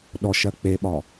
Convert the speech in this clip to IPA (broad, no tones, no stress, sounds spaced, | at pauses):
ɗ ɔ ʃ ɜ k͡p e ɓ ɒ